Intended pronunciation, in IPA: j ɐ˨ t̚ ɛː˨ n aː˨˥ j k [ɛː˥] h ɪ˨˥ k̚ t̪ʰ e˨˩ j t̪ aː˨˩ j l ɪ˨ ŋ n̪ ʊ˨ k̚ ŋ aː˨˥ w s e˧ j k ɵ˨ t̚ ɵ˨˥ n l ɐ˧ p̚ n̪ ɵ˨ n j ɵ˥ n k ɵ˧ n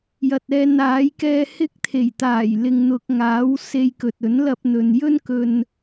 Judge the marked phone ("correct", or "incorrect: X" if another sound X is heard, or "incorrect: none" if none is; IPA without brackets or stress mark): incorrect: ɛː˧